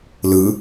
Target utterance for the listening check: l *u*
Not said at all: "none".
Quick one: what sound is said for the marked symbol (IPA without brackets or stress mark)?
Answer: ɯ